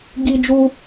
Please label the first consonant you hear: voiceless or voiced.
voiced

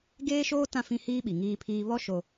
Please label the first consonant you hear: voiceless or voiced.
voiced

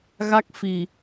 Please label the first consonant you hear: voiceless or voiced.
voiced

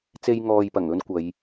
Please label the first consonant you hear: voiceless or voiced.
voiceless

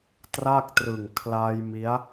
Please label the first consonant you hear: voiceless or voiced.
voiceless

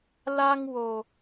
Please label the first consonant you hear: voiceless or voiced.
voiced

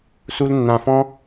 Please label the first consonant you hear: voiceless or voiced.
voiceless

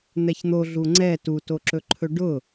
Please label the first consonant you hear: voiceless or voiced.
voiced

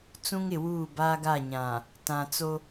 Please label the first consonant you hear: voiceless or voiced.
voiceless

